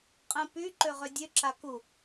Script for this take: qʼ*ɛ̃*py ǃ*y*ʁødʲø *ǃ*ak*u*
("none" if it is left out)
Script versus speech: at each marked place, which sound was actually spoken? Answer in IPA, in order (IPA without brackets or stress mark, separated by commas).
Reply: ɛ̃, ø, ǁ, u